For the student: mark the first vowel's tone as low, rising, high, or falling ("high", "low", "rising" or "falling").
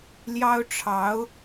high